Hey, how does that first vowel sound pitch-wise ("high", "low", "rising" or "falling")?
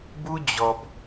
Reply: high